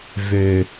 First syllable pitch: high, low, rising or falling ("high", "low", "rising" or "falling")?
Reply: low